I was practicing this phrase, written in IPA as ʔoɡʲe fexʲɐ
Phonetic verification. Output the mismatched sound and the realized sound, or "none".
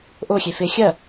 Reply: ɡʲ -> xʲ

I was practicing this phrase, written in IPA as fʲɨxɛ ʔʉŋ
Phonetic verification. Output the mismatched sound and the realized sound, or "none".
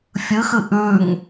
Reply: ɛ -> ɨ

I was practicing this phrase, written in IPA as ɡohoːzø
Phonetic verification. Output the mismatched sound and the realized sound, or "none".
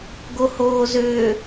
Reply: none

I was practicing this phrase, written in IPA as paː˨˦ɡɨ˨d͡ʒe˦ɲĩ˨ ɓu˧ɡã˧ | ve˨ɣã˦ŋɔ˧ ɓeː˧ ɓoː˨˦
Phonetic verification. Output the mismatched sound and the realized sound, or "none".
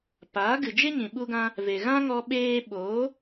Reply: none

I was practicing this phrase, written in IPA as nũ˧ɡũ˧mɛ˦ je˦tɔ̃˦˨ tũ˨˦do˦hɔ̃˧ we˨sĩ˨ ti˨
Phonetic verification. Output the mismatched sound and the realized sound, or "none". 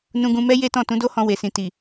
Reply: none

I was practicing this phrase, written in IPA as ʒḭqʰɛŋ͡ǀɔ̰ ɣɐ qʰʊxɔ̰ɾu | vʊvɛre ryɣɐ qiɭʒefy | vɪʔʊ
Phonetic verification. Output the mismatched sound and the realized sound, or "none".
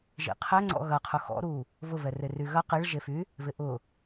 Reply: none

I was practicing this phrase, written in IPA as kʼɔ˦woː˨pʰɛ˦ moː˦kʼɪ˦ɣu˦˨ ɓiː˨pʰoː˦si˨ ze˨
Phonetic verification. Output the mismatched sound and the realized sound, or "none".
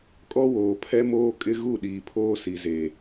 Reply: ɓ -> ɗ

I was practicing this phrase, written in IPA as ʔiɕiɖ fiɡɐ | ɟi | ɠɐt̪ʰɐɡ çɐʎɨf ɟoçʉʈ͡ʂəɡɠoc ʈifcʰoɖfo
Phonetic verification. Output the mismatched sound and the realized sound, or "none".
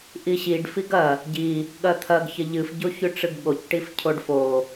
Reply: ə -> ɨ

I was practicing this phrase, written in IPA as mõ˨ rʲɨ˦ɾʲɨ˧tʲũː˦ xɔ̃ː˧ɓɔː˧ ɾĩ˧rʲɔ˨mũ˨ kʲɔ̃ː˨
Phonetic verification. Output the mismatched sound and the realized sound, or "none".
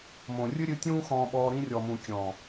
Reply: none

